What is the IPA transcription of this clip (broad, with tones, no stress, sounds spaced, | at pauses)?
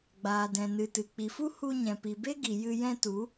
ɡ͡b aː˨ d ɛ̃˨ n ɨ˨ t ɨ˨ k͡p i˨ f u˦ h u˧ ɲ ɛ̃˨ p i˨ b e˦ ɡ i˨ j ɨ˧ j ɛ̃˦ t u˨˦